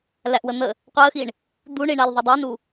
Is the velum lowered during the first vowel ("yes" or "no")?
no